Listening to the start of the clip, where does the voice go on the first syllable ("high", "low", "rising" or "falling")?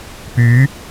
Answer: rising